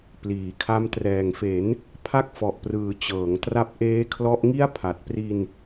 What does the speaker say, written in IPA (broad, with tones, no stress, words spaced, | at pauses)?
pliː˩˦kʰa˦˥m trɛː˨˩ŋfe˩˦n | pʰa˥˩k̚fɔ˨˩ʔprɯː˨˩ t͡ɕɤː˩˦ŋ tra˦˥p̚ʔeː˦˥kʰlɔ˦˥ʔŋi˥˩a̯ pʰa˨˩t̚pri˧n